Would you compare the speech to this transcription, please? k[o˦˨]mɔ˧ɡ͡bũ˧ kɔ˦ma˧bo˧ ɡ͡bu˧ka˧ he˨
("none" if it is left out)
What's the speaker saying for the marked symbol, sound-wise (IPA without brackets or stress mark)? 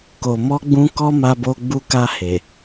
o˨